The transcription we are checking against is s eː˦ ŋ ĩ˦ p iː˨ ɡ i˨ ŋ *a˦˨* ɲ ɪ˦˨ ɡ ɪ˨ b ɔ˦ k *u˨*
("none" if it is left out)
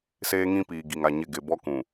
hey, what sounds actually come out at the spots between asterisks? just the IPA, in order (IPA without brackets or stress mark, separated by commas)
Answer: a˦˨, ũ˨